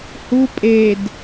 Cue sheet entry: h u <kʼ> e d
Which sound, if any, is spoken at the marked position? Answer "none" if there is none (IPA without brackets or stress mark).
pʼ